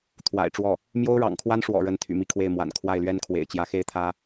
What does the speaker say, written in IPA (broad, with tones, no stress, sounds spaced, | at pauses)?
t̪ʰ w a̰˨˩ ɪ̯ ʈ͡ʂ w ɔ˥˩ | m j o˥ ʊ̯ ɻ ɑ̰˨˩ ŋ kʰ w a˥ n ʂ w ɔ̰˨˩ ɻ ə˥ n t̪ʰ y̰˨˩ m i˥˧ kʰ w e˥˩ ɪ̯ m w a̰˨˩ n kʰ w a˥˩ ɪ̯ l ɥ ɛ˥ n kʰ w ḛ˨˩ ɪ̯ t͡ɕ j ä˧˥ x e˥ ɪ̯ t̪ʰ ä˥